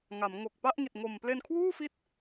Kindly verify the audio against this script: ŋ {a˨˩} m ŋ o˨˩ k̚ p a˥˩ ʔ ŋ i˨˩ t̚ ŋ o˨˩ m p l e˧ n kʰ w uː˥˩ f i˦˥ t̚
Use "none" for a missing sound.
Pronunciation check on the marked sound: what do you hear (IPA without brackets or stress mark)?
a˩˦